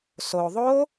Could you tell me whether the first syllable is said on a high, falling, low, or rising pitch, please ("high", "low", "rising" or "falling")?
low